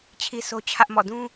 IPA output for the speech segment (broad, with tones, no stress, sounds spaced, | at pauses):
t͡ɕʰ i˦ s o˦ t͡ɕʰ ä˦ ʔ m ɔ̰˦˨ d ũ˦